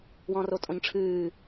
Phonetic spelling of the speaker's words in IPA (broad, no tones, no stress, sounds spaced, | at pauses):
w ɔ̃ r o tʼ õ ɲ ʈ͡ʂʰ ɨː